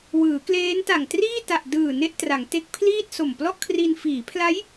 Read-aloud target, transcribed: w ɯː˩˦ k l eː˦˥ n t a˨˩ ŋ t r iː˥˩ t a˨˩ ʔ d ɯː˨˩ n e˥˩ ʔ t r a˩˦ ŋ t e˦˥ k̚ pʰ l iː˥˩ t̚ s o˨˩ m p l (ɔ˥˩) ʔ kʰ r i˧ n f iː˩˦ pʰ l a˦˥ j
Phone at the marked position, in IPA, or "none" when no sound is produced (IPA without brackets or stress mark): ɔ˥˩